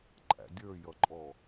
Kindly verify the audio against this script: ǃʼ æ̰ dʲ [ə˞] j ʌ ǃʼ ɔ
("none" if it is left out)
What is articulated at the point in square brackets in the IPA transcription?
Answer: ə˞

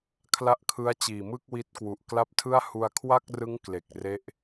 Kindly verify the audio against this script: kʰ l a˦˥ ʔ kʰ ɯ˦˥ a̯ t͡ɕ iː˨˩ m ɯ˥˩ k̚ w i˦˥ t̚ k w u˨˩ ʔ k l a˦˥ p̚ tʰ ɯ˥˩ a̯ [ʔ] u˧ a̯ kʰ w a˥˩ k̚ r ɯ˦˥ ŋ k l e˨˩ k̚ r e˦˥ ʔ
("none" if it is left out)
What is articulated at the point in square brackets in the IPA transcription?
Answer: h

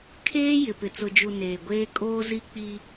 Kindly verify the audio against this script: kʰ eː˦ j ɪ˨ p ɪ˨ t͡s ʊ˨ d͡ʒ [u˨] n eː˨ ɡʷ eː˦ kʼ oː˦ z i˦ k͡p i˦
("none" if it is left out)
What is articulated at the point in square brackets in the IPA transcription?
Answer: u˨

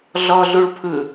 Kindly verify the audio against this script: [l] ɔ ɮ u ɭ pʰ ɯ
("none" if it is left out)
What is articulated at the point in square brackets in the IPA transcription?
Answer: ɮ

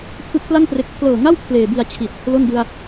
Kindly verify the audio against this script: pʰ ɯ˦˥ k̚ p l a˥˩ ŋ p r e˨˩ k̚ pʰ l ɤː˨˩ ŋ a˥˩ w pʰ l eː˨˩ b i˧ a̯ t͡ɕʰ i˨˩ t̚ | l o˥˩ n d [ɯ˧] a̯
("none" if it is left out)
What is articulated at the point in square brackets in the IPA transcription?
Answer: ɯ˧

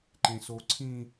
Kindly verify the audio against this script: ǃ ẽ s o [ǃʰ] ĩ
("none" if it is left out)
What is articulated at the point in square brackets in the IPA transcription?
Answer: ǀʰ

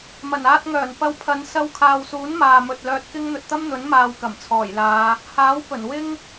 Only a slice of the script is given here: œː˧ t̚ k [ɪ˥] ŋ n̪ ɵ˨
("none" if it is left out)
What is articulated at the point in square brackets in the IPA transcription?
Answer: ɪ˥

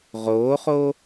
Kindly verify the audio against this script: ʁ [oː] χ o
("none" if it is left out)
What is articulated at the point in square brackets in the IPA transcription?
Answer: oː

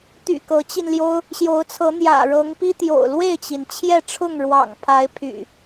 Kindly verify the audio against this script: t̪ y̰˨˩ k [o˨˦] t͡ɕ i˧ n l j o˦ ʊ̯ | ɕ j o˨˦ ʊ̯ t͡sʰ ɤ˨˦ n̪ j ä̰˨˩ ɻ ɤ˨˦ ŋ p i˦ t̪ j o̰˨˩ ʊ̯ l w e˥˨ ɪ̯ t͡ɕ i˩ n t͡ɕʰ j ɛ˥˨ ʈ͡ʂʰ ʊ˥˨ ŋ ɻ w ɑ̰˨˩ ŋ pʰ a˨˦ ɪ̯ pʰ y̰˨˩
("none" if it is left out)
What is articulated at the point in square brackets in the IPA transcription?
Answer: ɤ˨˦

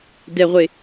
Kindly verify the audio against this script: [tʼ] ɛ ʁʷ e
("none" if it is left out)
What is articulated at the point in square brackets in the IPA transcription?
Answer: d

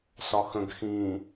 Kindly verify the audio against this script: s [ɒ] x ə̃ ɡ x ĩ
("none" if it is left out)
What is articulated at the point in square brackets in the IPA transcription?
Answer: ɒ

